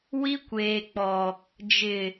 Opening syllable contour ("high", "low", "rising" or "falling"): high